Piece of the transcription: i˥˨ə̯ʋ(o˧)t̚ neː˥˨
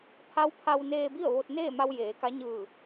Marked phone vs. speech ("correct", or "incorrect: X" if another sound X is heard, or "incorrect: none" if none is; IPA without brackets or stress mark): correct